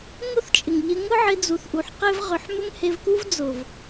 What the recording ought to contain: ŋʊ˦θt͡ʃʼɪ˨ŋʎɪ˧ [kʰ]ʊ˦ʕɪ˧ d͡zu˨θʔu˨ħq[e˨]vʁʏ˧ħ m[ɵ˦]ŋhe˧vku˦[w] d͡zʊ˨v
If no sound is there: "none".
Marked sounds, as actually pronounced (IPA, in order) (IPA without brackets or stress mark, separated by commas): ŋ, e˦, ɵ˦, v